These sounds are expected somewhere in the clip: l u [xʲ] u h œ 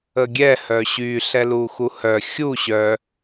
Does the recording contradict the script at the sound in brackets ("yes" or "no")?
yes